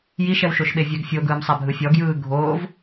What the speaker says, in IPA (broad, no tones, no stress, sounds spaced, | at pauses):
j i ʃ ɛ w ʃ o ʃ ɓ e vʲ ɛ ɡ fʲ o ɡ ɯː m sˤ a bʱ ɯ fʲ ɔ ɡ j ɯː ɡʱ oː v